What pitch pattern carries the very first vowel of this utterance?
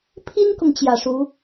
high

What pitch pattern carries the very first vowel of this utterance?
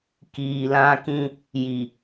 low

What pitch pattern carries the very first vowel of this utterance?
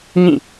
falling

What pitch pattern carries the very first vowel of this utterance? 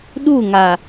falling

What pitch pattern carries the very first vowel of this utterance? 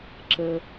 low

